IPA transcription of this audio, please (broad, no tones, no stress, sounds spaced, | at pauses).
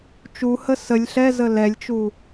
t͡ʃ u h ə s ə lʲ ɬ ɛ z ə l ɛ lʲ t͡ʃ u